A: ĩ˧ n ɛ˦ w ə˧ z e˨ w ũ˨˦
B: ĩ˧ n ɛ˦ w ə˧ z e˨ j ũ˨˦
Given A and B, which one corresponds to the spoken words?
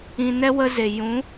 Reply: B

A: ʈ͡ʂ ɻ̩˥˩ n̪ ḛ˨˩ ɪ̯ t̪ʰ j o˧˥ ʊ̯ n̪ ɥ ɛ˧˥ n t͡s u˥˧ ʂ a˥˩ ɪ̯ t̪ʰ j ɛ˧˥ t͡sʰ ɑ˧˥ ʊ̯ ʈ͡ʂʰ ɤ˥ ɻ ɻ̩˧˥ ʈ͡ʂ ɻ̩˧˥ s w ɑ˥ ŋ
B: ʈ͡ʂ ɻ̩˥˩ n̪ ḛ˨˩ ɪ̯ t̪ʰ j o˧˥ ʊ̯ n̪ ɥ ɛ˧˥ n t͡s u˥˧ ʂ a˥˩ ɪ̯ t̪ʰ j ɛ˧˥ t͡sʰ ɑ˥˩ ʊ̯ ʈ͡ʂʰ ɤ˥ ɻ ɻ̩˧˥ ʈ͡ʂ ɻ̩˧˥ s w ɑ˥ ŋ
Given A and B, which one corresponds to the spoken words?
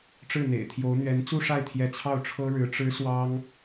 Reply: B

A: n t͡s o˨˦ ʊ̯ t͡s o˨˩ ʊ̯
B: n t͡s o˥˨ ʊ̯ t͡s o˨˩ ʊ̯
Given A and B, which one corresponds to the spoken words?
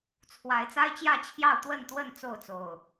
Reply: B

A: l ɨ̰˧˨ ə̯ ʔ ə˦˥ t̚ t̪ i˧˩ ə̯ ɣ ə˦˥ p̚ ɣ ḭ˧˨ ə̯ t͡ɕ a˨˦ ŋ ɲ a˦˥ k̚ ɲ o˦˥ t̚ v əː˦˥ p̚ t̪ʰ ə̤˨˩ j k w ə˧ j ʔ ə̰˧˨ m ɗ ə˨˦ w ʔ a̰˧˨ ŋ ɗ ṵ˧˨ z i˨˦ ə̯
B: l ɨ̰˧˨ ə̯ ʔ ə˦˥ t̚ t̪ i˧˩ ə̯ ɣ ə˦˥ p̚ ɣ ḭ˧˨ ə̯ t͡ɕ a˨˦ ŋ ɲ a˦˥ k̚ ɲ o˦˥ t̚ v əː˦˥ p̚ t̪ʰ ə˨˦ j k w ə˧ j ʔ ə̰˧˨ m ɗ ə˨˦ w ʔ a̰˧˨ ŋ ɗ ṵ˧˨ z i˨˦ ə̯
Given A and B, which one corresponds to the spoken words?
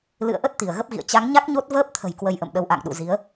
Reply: A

